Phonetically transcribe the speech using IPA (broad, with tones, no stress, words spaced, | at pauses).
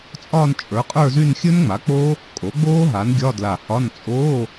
t͡sʼɒː˥˧nt͡ʃʼə˞˩˥qʼə˞˥˧zy˥˧n xʲɵ˦˥nŋ͡ma˩˥k͡po˦˥ | kʼo˩˥ɡ͡boː˦˥ ɦa˩˥n ɡʲɒ˧˥˧dla˧˩hɒ˧˥˧n t͡sʼoː˧˥˧